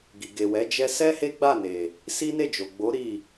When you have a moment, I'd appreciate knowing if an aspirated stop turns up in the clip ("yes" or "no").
no